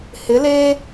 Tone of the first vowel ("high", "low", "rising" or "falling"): rising